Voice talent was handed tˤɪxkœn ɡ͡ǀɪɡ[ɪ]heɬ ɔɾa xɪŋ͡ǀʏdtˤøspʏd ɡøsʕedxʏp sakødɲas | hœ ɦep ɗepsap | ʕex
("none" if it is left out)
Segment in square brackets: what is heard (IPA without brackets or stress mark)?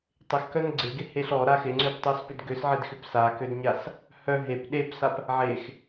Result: ɪ